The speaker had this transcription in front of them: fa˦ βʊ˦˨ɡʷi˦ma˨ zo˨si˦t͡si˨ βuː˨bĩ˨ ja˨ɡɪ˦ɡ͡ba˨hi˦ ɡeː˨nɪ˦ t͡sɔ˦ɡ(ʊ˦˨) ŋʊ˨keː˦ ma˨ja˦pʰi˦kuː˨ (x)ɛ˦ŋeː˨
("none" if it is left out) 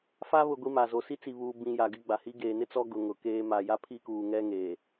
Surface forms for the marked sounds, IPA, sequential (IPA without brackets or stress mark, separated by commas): ʊ˨, ŋ